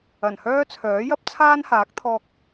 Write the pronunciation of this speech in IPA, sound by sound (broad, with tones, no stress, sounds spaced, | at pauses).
ɐ˨˩ n h œː˥ t͡sʰ œː˨˥ j ɐ˥ p̚ t͡sʰ aː˥ n h aː˨˥ k̚ t̪ʰ ɔː˧ k̚